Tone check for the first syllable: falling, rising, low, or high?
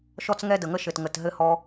high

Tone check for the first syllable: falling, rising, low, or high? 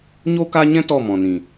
high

